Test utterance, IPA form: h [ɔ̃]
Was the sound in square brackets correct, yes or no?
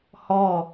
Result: no